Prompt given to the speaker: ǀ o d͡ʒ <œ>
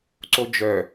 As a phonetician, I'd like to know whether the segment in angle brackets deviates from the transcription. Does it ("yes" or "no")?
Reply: no